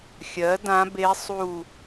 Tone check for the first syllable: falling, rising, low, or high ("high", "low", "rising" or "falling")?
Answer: rising